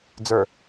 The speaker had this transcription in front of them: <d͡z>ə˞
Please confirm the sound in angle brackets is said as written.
yes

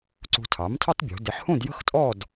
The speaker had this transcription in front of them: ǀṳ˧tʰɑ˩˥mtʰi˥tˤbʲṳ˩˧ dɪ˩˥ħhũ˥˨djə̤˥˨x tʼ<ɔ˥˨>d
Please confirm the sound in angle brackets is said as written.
yes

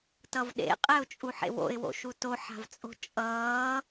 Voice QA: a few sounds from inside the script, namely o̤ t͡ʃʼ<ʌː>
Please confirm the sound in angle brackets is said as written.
yes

